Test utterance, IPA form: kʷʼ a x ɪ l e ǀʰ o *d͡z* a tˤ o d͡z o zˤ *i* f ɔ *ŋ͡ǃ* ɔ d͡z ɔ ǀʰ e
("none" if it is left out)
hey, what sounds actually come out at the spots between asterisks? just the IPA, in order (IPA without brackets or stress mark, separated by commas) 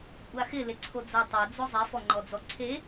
d͡z, i, ŋ͡ǃ